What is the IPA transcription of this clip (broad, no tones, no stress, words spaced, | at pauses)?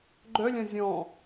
ɡ͡ǃœlʲɐ̃ zʲɔ̃